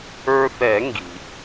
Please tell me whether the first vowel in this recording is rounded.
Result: no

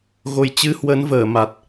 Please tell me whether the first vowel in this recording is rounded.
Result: yes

